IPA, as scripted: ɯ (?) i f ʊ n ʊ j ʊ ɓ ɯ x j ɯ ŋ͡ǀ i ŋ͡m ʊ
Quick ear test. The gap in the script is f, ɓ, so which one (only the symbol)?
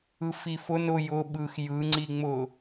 f